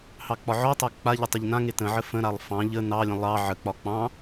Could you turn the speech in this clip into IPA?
h ɑ k͡p ɒ ʕ ɔ tˤ a k͡p a ʎ ə tˤ ə ʎ n ã ŋ e t ə̃ ʕ ə f ə̃ ɾ a lˠ f ɑ̃ ʎ ə n ɑ lʲ ə̃ lˠ ɑ ʕ ə k͡p ɒ k͡p ɑ̃

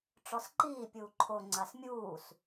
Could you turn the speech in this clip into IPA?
ʈ͡ʂ ɔ s ǃ iː pʲ uː ǃʰ o ŋ͡ǀ a s mʲ uː s

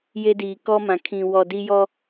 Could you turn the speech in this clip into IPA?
j e˦ d iː˨ k ɔ˦ m ã˨ kʰ ĩ˨ w ɔ˨ d i˦ j ɔ˦

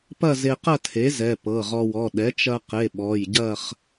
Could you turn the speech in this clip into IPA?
p ɐ˥˧ z e˧ q ɐ˥˧ tʰ e˩˥ z ɛ˩˧˩ p ɤ˩˧˩ ʁ ɔ˧ w ɔ˩˧˩ ɗ ɛ˩˥ t͡ʃ ɐ˧ q e˩˧˩ ɓ ɔ˩˧˩ j ɟ ɐ˥˧ χ

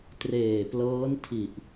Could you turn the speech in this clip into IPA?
t r eː˨˩ p l ɤː˦˥ n tʰ i˨˩ ʔ

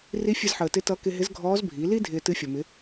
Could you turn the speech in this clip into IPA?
r i˧˥ fʲ ɨ˧ z ħ əː˩ t ɪ˧˥ t ʌ˧˥ k ɪ˧ ɦ ɪ˧˥ z ɡʱ ɔː˧˥ z bʱ i˩˧ l i˥ dʱ ɪː˧ t ɨ˧˥ fʲ ʌ˩ m ɪ˩˧

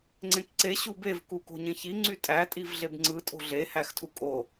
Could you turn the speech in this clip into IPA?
ŋ͡ǀ ẽ k ǀ e ɕ u b e v k u k o̤ ɲ ẽ ç i ŋ͡ǀ y tʼ æ tʼ i v ɮ e b ŋ͡ǀ ɯ tʼ o̤ ɮ e h æ x tʰ u kʼ o

